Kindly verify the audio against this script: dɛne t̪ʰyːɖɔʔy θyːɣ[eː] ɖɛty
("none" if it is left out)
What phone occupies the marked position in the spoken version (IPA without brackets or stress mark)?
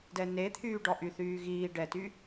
iː